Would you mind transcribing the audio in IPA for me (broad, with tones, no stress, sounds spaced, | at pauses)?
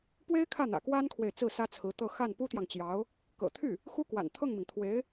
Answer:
p w e˥ ɪ̯ kʰ ä˥˩ n̪ ä̰˨˩ k w a˥ n kʰ w e˨ ɪ̯ t͡s ɹ̩˥˩ s ä˥ t͡sʰ ɹ̩˧˥ t̪ ɤ˥˧ x a˥˩ n p u˥ t̪ j ɑ˨ ŋ t͡ɕ j ɑ˧˥ ʊ̯ | k ɤ̰˨˩ t̪ʰ y˥˩ | x u˥ k w a̰˨˩ n t̪ʰ ɤ˥˩ ŋ m i˩ ŋ t̪ʰ w e˧˥ ɪ̯